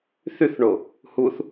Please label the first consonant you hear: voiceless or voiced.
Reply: voiceless